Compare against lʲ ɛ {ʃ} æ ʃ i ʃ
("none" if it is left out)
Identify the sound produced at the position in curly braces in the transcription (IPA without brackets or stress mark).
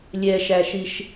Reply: ʃ